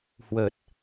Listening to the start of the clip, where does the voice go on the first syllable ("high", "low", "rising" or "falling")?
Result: low